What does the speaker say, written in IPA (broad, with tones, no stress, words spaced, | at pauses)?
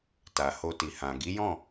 ta˨ho˧ti˨ hã˨ ɡi˨˦jɔ̃˦˨